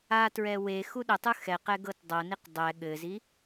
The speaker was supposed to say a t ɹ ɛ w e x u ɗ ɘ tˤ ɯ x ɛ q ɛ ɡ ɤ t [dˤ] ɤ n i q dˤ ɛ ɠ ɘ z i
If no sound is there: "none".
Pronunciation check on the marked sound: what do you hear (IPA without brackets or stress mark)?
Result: dˤ